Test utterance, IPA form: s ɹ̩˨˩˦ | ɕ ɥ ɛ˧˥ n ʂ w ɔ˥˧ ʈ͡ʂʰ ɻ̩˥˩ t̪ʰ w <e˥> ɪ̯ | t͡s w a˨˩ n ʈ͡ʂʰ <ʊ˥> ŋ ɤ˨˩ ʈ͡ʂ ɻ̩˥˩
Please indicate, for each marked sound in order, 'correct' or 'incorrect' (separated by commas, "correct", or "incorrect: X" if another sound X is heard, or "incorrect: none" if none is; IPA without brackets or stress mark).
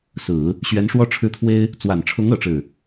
correct, incorrect: ʊ˧˥